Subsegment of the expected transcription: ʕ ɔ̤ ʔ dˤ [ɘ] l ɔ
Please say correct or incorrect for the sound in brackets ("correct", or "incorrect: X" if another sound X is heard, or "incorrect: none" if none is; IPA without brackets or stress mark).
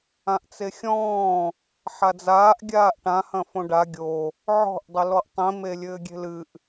correct